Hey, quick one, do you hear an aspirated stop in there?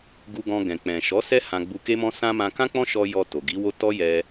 no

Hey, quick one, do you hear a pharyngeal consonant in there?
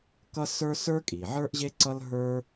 yes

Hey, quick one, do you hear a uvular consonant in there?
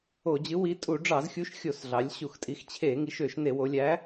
no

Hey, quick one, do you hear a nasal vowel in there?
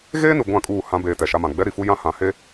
yes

